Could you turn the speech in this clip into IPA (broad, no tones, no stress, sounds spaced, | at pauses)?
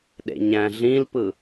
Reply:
ɗ ḛ ɲ æ̃ ɮ ĩ l p ɯ